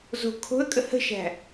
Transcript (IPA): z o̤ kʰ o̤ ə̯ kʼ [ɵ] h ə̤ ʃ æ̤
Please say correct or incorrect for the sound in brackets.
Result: incorrect